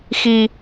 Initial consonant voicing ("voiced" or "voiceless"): voiceless